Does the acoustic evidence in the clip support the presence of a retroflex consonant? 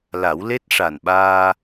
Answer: yes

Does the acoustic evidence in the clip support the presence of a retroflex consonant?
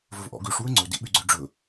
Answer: yes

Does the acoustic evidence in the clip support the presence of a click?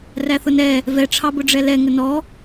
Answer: no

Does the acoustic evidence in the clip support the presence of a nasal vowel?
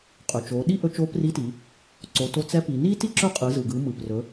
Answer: no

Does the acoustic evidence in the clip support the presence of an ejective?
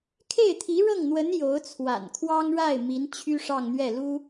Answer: no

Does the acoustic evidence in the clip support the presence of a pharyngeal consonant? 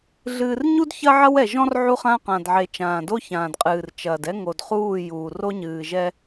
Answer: yes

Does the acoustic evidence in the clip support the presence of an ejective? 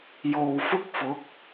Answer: no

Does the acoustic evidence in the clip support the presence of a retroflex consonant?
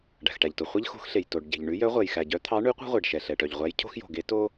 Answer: yes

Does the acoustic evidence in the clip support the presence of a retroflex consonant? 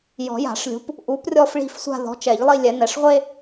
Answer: yes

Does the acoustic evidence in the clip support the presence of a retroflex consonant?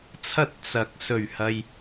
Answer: no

